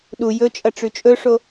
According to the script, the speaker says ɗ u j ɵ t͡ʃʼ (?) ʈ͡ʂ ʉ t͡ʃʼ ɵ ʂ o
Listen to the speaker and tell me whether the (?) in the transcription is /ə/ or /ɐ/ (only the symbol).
ɐ